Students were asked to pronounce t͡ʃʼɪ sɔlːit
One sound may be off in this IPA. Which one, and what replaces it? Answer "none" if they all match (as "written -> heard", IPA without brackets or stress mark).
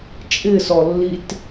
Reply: none